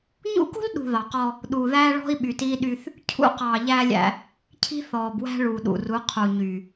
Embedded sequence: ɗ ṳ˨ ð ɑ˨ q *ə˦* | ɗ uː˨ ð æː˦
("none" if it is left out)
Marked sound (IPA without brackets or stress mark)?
ɔ˦